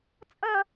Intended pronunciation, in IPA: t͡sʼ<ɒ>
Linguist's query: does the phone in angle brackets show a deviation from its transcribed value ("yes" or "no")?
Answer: yes